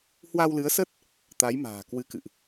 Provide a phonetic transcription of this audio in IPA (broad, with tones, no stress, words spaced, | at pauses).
hwa˧wlɨ˨˦ə̯sə˦˥t̚ | t̪a˨˦jma̤ː˨˩kwɨ˨˦kɨ̰˧˨ʔ